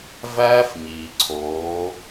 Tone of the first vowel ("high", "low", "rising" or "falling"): high